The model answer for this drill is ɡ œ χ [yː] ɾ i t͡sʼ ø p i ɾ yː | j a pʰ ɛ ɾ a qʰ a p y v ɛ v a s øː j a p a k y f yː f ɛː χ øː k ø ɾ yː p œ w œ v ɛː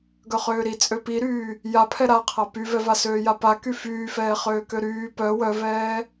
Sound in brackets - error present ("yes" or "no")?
yes